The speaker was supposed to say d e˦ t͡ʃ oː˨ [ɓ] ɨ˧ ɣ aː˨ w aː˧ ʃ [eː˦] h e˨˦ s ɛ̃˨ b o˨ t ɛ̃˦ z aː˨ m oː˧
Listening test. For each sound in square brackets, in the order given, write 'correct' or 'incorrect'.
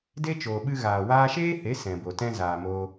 correct, correct

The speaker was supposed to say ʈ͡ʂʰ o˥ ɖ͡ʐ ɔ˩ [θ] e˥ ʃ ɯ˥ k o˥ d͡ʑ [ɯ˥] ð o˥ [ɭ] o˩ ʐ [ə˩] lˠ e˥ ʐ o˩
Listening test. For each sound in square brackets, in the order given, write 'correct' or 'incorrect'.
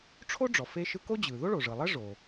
incorrect: f, incorrect: ɯ˩, correct, incorrect: ɯ˩

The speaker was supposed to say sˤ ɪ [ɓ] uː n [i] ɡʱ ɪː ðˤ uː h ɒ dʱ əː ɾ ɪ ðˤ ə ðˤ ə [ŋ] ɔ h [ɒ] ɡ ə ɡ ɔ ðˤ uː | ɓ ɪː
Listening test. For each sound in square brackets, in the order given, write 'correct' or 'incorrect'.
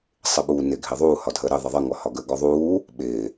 correct, incorrect: ɪ, correct, correct

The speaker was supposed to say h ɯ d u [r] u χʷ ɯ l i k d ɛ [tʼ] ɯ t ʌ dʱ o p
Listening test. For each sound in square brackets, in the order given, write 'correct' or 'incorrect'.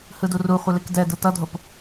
correct, incorrect: d

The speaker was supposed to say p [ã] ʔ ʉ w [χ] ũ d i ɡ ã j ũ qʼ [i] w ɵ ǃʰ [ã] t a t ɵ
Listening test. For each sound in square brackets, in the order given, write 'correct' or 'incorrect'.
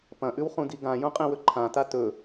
incorrect: ɐ̃, correct, incorrect: ĩ, correct

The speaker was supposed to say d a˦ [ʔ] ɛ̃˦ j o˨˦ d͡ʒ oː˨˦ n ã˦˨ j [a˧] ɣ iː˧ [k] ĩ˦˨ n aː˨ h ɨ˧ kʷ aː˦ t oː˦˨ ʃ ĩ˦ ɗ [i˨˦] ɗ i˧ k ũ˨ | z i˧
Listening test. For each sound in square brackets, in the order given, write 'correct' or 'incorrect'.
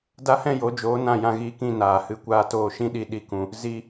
incorrect: h, incorrect: ã˧, correct, incorrect: i˧

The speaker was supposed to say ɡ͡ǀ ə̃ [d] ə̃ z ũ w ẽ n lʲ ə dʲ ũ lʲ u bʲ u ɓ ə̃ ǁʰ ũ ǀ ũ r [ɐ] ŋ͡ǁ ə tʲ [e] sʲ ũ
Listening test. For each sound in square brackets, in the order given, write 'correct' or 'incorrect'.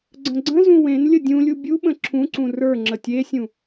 incorrect: ɡ͡ǀ, incorrect: ə˞, correct

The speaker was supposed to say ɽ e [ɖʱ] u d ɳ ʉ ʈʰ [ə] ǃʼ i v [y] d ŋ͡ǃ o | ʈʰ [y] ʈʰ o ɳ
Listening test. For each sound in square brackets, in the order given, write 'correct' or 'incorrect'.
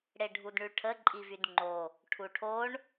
correct, correct, correct, incorrect: u

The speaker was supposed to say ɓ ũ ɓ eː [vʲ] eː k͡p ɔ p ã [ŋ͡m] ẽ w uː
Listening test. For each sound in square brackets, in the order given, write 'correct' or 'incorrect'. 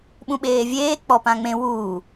correct, correct

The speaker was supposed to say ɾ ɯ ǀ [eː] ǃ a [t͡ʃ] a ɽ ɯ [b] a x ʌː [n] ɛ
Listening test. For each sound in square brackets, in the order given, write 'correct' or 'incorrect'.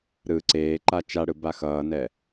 correct, correct, correct, correct

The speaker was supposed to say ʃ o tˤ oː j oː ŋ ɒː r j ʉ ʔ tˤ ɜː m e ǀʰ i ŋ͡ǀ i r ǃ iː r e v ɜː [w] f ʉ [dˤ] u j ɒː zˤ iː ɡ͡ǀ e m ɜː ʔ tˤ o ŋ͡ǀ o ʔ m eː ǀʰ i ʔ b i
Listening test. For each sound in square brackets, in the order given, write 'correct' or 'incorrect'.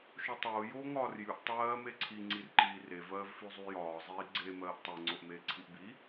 incorrect: v, incorrect: zˤ

